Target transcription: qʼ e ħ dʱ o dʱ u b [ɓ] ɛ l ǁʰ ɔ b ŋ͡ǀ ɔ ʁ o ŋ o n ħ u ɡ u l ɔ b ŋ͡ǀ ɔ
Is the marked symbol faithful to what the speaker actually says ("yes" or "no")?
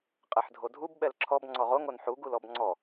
yes